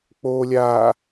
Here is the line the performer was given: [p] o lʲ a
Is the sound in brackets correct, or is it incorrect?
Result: incorrect